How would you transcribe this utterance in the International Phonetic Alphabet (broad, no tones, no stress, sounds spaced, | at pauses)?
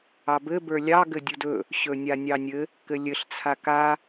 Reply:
ɑ b ɘ b ə˞ lʲ ɑ ɡ ɘ dʲ u d ɵ | ɕ ɵ nʲ a nʲ ɑ nʲ ɘ | k ɘ lʲ ɘ ɬ t͡sʰ a k a